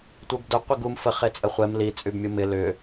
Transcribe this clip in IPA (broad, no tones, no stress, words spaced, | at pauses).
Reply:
tʷebdʊ qʷiɡum fə χet͡sʼəχʷɛm li t͡sʼybmʲumɪ lʏ